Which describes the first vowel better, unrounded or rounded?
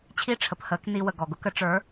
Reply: unrounded